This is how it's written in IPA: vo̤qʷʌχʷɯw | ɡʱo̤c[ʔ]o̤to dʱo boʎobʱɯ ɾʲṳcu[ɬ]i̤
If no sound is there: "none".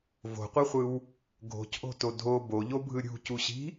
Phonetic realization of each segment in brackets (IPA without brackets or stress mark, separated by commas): ʔ, ɕ